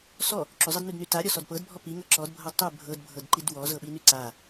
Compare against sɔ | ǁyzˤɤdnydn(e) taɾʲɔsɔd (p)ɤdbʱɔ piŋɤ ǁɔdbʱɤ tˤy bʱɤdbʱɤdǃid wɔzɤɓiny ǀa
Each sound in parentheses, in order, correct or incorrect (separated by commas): incorrect, correct